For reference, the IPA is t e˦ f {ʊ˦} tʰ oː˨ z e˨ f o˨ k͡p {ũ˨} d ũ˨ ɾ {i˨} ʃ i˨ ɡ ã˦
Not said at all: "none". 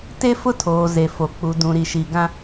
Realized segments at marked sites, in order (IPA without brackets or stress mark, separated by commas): ʊ˦, u˨, i˨